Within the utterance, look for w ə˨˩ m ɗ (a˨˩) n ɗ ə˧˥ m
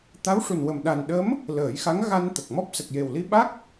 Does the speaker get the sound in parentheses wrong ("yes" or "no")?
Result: no